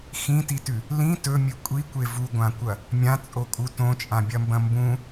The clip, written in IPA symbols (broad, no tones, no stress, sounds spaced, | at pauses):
x ĩ t i t ʉ | l ĩ t ɵ mʲ ɨ kʷʼ i kʷ e v u ɡʷ ã kʷ ɐ | mʲ ã t͡sʼ o kʼ u t õ t͡ʃʼ ã bʲ ɐ m b ɐ̃ m b ũ